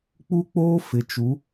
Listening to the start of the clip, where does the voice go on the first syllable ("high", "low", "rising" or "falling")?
high